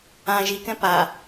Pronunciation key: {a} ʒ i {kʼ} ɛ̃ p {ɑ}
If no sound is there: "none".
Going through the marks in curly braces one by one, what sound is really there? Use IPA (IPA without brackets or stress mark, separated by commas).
ã, k, a